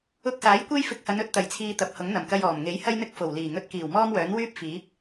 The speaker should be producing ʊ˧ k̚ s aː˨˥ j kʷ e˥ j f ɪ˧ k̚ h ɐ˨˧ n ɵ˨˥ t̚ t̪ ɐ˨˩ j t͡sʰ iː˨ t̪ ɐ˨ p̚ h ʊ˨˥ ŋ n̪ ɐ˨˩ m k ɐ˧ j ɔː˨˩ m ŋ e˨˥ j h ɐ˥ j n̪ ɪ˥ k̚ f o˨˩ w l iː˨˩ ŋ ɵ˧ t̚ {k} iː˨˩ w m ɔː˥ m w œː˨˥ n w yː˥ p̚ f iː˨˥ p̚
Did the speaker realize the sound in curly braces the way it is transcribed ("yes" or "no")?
yes